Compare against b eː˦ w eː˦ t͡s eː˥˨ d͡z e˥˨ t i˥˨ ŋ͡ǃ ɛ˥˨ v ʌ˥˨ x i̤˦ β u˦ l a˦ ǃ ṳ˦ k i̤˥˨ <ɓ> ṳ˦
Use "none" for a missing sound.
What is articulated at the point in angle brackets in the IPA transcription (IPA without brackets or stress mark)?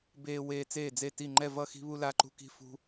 f